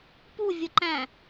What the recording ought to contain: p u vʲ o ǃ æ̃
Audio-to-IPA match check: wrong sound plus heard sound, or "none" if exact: none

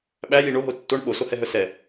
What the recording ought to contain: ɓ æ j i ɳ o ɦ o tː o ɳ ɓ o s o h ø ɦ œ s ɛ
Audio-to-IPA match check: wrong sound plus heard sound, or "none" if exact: ø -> ɛ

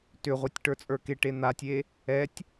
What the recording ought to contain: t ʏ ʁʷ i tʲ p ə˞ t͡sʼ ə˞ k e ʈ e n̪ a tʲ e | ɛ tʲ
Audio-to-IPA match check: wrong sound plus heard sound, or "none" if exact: p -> ʈ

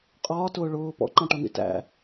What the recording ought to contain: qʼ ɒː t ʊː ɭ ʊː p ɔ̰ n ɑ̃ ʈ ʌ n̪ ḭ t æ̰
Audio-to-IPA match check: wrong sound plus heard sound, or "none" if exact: n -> ǃ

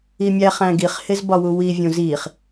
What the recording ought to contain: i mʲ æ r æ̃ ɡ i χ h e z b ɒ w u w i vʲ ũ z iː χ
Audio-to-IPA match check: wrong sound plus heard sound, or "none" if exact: r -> χ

